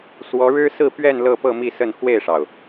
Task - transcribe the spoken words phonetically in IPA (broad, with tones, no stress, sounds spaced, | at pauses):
s w ɔ˧˥ ɻ ɻ̩˥ s ɹ̩˥˧ p ɥ ɛ˥˧ n l ɤ˥˧ p ɤ˥˧ m i˥˧ s ə˥˧ n x w e˥˩ ɪ̯ ʂ ɑ˩ ʊ̯